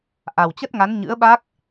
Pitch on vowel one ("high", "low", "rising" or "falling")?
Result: low